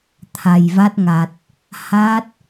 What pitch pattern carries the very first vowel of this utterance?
low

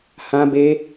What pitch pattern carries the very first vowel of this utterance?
high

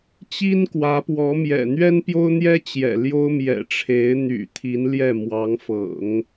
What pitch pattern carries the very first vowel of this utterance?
high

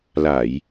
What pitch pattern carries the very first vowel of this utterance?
low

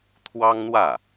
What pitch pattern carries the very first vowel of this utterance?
high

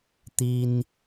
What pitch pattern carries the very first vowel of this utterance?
high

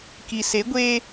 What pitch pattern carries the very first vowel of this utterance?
low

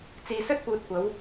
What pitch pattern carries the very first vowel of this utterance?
low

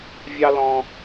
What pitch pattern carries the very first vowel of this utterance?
high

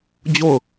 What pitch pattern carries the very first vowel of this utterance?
falling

